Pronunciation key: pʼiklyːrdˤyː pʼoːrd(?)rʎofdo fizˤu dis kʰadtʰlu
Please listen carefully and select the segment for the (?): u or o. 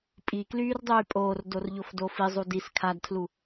o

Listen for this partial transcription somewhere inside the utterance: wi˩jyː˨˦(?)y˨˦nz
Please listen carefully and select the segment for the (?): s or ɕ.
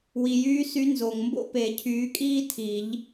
s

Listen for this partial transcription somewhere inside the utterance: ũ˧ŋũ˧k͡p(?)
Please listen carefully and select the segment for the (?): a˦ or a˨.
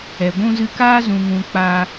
a˦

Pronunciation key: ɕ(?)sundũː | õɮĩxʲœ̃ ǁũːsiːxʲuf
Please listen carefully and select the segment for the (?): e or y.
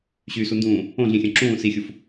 y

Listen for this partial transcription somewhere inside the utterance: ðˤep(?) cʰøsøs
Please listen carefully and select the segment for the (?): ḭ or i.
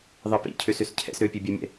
ḭ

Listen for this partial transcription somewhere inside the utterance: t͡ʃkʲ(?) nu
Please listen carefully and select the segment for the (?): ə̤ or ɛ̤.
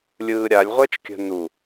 ə̤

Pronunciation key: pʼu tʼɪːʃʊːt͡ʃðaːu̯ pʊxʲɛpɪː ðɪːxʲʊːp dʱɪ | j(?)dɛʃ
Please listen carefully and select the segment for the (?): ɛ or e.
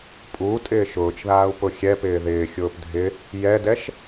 ɛ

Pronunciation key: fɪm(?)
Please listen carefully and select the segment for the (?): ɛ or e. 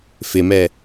ɛ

